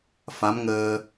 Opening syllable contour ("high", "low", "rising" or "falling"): rising